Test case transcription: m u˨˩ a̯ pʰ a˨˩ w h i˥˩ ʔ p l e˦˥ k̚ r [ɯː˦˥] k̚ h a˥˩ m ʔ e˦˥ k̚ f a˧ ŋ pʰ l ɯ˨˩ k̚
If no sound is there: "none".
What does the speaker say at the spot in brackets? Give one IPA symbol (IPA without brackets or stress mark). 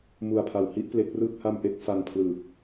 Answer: ɯː˥˩